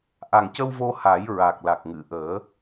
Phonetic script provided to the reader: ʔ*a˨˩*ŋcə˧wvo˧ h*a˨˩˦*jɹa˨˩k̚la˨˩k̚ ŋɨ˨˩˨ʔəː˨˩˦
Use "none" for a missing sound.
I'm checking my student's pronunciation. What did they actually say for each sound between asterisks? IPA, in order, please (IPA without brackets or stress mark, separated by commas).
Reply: a˨˩, a˨˩˦